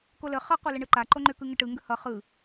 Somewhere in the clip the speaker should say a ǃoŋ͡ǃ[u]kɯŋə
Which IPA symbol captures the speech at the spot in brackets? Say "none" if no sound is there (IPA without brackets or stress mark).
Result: ʏ